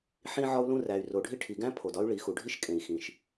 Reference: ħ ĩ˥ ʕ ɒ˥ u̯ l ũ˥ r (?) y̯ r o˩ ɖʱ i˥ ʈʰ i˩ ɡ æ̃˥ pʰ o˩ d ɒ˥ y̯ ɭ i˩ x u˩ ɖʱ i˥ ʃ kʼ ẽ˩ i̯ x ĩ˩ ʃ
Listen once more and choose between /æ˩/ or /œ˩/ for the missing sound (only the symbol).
æ˩